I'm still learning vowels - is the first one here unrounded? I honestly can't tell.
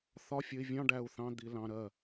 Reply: no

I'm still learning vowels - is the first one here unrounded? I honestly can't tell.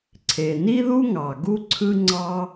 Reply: yes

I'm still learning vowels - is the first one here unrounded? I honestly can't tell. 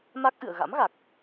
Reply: yes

